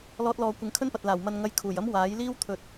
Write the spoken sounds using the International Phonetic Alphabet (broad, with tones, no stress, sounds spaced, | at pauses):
l ɔː˥ t̚ l ɔː˧ kʷ ɪ˨˧ ŋ kʰ ɵ˥ n p ɐ˨ t̚ l aː˨˩ w m ɐ˧ n ŋ ɐ˧ j kʰ uː˨˩ j ɐ˥ m w aː˨˥ j l iː˥ w t̪ʰ ɵ˨˥ t̚